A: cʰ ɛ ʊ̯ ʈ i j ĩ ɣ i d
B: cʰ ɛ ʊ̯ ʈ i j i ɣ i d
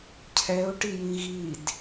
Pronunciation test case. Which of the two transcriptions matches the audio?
A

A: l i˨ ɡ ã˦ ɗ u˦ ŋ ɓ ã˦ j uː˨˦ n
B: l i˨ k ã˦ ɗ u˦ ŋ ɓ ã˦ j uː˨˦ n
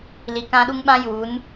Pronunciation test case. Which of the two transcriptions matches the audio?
B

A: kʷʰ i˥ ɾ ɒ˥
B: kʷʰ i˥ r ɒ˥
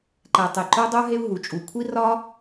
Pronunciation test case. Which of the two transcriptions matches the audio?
B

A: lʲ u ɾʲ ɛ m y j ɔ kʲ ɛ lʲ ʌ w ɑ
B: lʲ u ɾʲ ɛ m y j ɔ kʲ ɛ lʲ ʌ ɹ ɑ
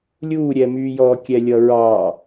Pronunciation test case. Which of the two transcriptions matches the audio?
B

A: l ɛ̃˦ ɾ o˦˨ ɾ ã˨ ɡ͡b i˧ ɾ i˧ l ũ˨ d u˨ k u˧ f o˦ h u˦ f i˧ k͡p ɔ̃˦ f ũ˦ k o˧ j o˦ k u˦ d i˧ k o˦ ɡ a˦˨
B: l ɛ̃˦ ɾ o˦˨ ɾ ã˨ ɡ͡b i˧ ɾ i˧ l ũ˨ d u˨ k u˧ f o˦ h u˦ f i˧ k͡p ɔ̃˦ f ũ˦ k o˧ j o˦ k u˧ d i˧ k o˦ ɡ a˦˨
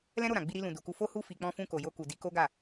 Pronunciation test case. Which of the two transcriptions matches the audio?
B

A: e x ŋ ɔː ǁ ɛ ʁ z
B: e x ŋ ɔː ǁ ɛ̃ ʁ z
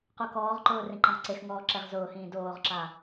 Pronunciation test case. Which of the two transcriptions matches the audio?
A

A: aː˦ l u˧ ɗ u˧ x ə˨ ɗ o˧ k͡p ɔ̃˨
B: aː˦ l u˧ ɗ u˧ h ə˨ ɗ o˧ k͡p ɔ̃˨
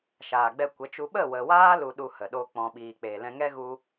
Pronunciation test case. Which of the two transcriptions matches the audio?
B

